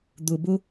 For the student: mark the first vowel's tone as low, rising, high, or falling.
low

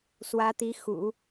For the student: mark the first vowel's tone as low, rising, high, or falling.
rising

